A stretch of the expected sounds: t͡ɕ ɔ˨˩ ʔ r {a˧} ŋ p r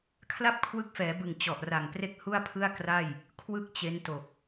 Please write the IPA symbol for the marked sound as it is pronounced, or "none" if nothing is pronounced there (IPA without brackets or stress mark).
a˨˩